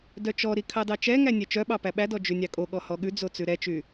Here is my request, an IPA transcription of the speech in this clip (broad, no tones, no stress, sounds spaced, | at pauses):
d œ t͡ʃ ɔ ɾ i kʰ ɑ d ɑ t͡ʃ ɛ ŋ æ nʲ ɛ t͡ʃ œ ɓ ɑ p æ ɓ æ d ɔ d͡ʒ ʉ nʲ ɑ kʼ o ɠ ɔ h ɔ ɠ ʉ d͡z o t͡s ʉ ɾ ɛ t͡ʃ y